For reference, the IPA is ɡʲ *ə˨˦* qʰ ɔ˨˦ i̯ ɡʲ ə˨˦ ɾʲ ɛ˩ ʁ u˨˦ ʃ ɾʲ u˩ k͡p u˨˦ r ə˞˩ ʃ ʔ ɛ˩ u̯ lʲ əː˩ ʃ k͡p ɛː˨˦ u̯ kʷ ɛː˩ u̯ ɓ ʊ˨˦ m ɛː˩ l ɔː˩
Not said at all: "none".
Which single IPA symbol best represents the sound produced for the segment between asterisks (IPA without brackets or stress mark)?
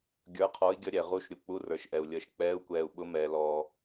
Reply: ə˞˨˦